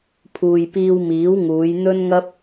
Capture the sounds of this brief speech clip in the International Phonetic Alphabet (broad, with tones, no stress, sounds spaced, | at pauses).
pʰ uː˨ j p iː˧ w m iː˨˥ w ŋ uː˨˧ j n̪ ɵ˥ n ŋ ɐ˥ p̚